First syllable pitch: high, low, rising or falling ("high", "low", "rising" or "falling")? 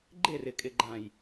falling